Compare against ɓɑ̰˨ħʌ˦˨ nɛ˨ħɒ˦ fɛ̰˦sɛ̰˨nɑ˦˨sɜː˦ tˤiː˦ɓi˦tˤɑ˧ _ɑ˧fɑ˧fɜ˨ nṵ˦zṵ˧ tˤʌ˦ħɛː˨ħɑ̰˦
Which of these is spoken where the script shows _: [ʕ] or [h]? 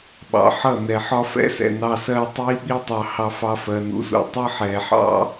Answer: h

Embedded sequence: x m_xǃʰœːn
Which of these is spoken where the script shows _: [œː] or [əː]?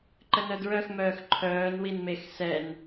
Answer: œː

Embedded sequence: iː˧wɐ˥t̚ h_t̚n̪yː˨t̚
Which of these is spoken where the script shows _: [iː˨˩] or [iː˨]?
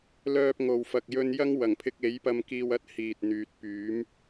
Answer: iː˨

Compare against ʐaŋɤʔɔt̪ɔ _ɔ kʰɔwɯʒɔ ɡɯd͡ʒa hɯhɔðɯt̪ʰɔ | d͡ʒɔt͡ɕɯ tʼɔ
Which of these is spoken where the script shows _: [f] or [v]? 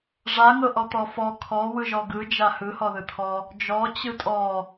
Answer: f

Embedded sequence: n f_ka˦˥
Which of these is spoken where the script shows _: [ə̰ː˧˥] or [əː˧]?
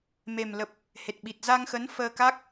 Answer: əː˧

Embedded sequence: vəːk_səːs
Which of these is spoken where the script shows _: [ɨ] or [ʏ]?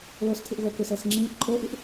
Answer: ʏ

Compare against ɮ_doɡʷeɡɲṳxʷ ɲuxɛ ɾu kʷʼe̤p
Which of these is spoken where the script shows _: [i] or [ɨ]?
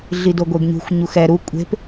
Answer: i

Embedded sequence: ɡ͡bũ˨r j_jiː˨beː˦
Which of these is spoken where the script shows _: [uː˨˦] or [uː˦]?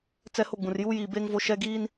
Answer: uː˦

